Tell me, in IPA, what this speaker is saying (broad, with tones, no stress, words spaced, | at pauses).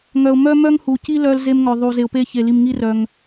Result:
ŋœ˨ʊ̯ mœ˦mœ˦ŋhu˨ci˦ lœ˦l ze˦mŋœ˨ðˤu˨ ze˨ʊ̯pe˦çe˨ li˨mŋi˦rœ˨ŋ